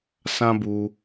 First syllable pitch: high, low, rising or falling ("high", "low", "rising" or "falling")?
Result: high